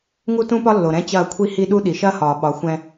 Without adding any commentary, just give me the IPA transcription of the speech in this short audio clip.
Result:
ŋ u˦ t ũ˦ p ɒ˦ lː o˨ ɾ ɛ̃˦ t͡ɕ ɐː˦˨ kʷʰ i˦ h i˦ ɗ u˦ ɗ i˨ ʃ ɐː˦ h ɒː˨ ɓ ɒ˨˦ xʷ ɛ̃˦

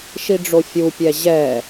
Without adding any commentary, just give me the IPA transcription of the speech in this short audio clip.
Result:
ʃ i ɖ͡ʐ o fʲ u pʲ ɛ ʑ ɛ

